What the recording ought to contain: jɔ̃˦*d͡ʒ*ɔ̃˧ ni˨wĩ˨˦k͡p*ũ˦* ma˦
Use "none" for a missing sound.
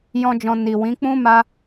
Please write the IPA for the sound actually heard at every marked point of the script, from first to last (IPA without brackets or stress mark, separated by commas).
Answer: d͡ʒ, ũ˦